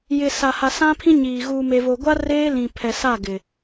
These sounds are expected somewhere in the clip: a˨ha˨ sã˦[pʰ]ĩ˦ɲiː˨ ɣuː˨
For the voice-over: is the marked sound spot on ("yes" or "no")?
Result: yes